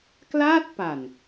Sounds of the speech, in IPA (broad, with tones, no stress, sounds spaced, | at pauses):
k l aː˥˩ t̚ p a˨˩ n